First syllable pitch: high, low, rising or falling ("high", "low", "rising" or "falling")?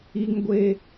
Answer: high